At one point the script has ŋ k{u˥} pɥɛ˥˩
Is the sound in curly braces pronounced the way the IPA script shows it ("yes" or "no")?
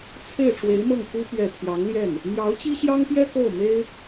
yes